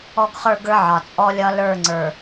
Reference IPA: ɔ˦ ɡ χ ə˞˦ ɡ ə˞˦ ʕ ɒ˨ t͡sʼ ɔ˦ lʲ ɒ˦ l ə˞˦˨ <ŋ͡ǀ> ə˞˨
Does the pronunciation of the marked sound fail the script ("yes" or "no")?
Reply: no